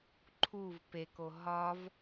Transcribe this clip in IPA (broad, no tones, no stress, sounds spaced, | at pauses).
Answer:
ǃʰ u v p e k o ɦ ɒ v